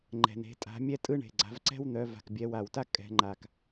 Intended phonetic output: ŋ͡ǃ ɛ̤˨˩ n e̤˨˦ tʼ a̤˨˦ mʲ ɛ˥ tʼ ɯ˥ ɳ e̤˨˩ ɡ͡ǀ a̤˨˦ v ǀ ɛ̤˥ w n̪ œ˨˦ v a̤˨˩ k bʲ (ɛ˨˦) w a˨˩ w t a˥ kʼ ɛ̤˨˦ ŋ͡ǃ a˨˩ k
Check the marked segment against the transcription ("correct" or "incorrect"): correct